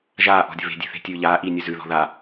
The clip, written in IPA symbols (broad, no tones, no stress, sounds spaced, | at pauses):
ʒ aː ʔ ɔ̤ dʲ ə̤ β e̤ dʲ e̤ θ e̤ tʲ ʉː ʎ aː ʔ iː nʲ ʉ z ʉ ð ɔ̤ ð a